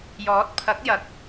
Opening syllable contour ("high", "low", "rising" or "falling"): rising